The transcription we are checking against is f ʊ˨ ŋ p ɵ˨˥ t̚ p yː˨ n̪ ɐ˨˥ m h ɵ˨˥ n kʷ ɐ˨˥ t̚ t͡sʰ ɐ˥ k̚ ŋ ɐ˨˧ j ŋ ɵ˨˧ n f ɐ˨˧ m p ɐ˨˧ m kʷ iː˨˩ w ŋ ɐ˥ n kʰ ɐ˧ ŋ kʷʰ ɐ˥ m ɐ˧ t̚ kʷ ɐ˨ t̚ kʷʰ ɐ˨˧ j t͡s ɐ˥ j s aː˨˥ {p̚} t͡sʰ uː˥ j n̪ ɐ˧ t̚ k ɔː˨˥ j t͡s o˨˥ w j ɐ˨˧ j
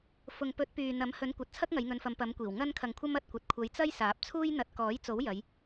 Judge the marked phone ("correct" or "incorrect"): correct